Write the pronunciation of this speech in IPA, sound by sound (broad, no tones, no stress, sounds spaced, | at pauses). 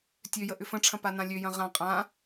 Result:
tʲ ø j ə ʔ ʏ f ə̃ ʈ͡ʂʰ ɐ̃ p a n ã lʲ ø j ɐ̃ ʁ ã qʼ ã